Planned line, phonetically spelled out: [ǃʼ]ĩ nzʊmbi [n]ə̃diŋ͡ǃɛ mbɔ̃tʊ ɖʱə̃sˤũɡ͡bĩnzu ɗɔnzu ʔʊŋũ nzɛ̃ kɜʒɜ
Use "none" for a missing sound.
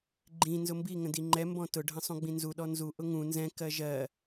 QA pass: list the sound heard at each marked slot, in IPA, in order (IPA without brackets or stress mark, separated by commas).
ɡ͡ǃ, ŋ